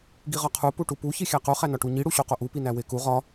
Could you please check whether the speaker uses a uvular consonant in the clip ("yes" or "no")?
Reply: yes